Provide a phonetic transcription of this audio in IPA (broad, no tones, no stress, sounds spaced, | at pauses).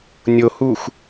nʲ o h u x